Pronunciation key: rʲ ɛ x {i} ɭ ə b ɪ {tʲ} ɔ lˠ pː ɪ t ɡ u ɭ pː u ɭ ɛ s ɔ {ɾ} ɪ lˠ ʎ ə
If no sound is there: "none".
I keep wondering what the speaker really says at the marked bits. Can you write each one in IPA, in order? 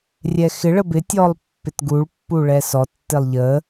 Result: ɪ, tʲ, tː

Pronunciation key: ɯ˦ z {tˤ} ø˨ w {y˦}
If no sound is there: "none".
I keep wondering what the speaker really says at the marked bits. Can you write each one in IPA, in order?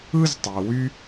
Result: tˤ, y˦

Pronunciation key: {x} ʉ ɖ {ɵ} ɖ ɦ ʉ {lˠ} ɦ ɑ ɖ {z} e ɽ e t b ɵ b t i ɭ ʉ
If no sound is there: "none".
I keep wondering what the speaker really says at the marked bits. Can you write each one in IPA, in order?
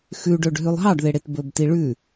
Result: x, ɵ, lˠ, ð

